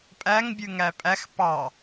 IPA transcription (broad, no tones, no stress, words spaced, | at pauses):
pʼæŋbʲʉŋæ pʼæx pɑ